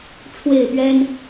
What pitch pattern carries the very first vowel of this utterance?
falling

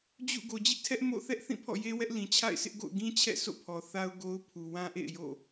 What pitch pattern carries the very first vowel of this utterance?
falling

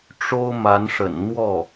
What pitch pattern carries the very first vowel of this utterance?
high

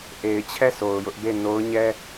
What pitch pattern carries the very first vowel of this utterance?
low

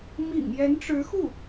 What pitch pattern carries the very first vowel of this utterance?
low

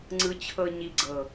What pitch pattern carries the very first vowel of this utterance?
low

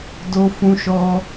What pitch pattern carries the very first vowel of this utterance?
high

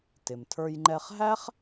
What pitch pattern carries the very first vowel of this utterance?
low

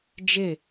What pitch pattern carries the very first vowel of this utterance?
falling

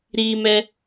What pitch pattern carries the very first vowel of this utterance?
high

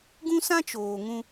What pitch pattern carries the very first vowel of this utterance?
high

